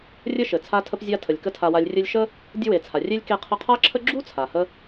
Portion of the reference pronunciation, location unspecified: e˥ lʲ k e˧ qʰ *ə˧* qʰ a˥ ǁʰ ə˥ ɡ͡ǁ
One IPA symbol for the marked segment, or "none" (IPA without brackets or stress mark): ə˧